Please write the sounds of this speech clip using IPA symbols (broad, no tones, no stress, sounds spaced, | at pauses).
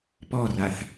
p ɔ r a θ